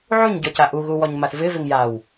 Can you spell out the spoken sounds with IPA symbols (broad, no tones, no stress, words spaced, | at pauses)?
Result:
ʕuɲ ɟɔcaʔu ɣuwɔɲmaθvɪ vɪŋjaw